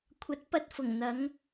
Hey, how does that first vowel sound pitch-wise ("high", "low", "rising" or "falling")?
rising